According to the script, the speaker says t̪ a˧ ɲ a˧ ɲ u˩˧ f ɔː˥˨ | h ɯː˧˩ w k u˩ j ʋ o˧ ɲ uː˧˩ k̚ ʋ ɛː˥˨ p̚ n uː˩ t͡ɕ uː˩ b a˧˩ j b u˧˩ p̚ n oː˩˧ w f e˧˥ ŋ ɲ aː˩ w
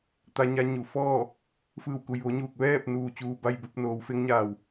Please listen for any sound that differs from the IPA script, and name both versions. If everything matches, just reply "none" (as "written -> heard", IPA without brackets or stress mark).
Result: h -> f